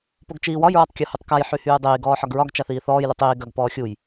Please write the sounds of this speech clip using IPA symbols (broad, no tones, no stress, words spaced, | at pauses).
poɡt͡ʃiːwɒj ɹɒtˤkʲohutˤkaj ħyhyːdˤiː ɡɔːħɒɡɹɒɡ t͡ʃaθiːθɔːj lutˤiː ɡɐɡ pɔːxʲuj